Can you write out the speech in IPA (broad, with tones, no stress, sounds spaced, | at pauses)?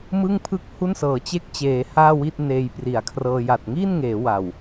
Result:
m ɯ˥˩ ŋ pʰ ɯ˥˩ k̚ h u˥˩ n s ɤː˩˦ t͡ɕ e˥˩ k̚ t͡ɕ eː˩˦ h aː˥˩ w i˥˩ t̚ n eː˧ j p r i˩˦ a̯ kʰ r ɤː˧ j a˨˩ t̚ ŋ iː˥˩ n ŋ eː˩˦ w a˨˩ w